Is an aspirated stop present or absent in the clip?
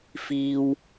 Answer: absent